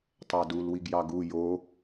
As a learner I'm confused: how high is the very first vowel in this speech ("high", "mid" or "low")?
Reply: low